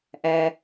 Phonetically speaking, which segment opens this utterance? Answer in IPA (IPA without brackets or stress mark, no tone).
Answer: ʔ